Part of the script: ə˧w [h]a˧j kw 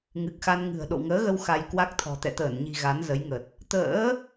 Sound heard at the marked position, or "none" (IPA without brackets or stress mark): x